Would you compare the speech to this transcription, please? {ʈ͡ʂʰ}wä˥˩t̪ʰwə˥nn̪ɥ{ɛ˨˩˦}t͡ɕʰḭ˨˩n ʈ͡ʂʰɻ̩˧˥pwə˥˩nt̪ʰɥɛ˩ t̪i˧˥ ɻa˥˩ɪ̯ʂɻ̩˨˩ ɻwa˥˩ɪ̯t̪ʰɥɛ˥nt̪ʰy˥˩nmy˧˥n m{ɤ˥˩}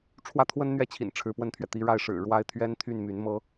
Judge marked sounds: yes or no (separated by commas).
yes, no, no